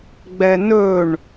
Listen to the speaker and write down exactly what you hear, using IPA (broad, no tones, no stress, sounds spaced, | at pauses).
ɡ͡b ɛ n ɵ ɳ